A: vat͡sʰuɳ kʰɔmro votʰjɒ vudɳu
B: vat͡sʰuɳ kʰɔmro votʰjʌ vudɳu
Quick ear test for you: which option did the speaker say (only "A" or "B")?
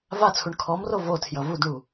B